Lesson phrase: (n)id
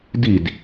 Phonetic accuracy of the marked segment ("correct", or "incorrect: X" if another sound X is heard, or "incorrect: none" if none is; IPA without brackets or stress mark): incorrect: d